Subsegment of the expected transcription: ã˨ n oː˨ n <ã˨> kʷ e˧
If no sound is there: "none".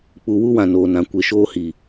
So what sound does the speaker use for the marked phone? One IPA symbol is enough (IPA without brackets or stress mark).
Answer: ã˨